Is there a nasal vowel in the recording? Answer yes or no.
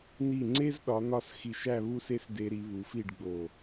no